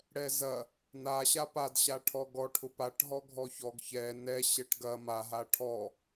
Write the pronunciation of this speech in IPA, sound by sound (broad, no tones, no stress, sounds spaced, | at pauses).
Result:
ɽ ɛ z ɐ | n a ɕ a p a d ɕ a ʈʰ ɔ ɡ ɔ ʈʰ ʊ p a ʈ ɦ ɔ ɡʱ ɔ ç ɔ ɡ ç ɛ n ɛ ɕ ɛ ʈ ɡ ɐ m a ɦ a ʈʰ ɔ